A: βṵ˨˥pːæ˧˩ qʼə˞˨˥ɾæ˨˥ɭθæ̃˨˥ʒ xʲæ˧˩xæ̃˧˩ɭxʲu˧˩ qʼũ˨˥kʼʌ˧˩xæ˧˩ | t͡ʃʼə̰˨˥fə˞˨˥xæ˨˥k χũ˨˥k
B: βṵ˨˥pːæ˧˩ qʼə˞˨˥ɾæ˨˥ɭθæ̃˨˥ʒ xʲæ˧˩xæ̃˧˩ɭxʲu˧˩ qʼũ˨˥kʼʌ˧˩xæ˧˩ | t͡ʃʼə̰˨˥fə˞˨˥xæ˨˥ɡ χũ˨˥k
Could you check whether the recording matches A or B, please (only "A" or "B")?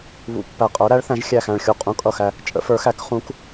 A